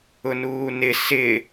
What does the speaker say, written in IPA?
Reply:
ʊ n uː n ɪ s ɪ

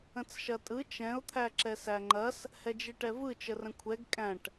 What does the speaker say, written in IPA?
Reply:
ə̃ t͡s ʃ ɐ tʼ ɯ t͡ʃ ɛ̃ ʊ̯ t̪ʰ æ ǁ ɛ s æ ŋ͡ǃ ɐ s | h ɛ d͡ʒ i ʈ ɛ v ɯ t͡ʃ ə r ə̃ kʷʰ ɛ ɡ kʼ æ̃ ʈ

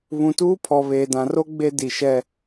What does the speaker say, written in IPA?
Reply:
β ũ˨ t uː˦ pʰ ɔ˨ β eː˨ d ã˨ r o˦ ɡ͡b e˦ d i˨ ʃ ɛ˦

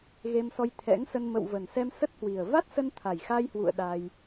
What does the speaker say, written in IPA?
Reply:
ɣ e˧ m s ɔ˧ j t̪ʰ ɛ̰˧˥ ŋ s ə˧ n m ə̰˧˨ w v ə˨˩ n s ɛ˧ m s ə˦˥ t̚ h w i˨˩ ə̯ v a˦˥ t̚ s ə˧ n t̪ʰ a˨˩ j x a˧ j h w ṵ˧˨ ə̯ ɗ a˧ j

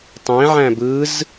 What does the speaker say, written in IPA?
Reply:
tˤ ẽ ʕ æ̃ b ɯ z

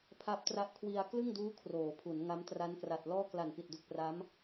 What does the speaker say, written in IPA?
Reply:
pʰ a˦˥ p̚ t r a˦˥ ʔ kʰ w i˧ a̯ k l ɯ˥˩ ŋ d uː˦˥ kʰ r oː˩˦ pʰ u˩˦ n ŋ a˦˥ m t r a˦˥ n k r a˨˩ t̚ l ɔː˥˩ k l a˨˩ n p i˨˩ t̚ d u˨˩ k̚ p r a˦˥ m

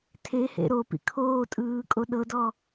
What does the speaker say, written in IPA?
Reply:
tʰ e h ḛ ɾ o p ḭ kʰ oː tʼ ɯː kʼ o ɗ ɤ d ɔ

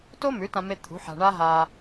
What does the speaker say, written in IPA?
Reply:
t o˥ m ʉ˩˥ t ã˧ m e˧ t̪ʰ ṳ˩˥ ħ a̤˧ ɳ a˥ ɦ aː˧

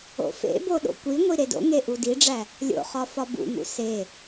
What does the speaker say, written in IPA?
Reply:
o̰ f ḛ b o ɗ o̰ kʷ i ŋʷ i ɾ e d o̰ ŋ e ʔ u d i ɖ͡ʐ æ | lʲ o̰ χ ɒ f ɒ b ṵ ŋ ṵ s e

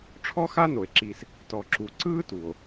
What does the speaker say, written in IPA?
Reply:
ʈ͡ʂʰ ɔ˥ x a˥ n o˩ e̯ ǁ iː˨ s | t ɔ˨ ǁ u˨ ǀ ɯː˥ t u˩ o̯

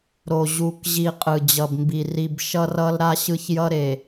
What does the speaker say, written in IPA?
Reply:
ɾ o˨ ʑ u˨ k ʑ i˨ qʼ ɯ˨ d͡ʑ ʌ˨ b m b i˨ r i˨ b ʃ ʌ˦ r ʌ˦ l ɾ a˦ ɕ ɯ˦ ç j ʌ˦ ɾ e˨

